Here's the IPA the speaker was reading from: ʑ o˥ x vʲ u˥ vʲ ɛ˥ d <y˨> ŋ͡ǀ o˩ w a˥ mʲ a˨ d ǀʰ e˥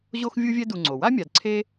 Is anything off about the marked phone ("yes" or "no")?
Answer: yes